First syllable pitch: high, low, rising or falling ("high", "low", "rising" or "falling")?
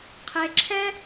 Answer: low